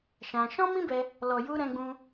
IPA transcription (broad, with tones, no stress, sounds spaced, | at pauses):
ʃ ã˧ ʃ ɔ̃˦ m ĩ˦ b ɛ˧ | l ɔ˨ j u˧ ɾ ɛ̃˦ ɡ͡b ũ˦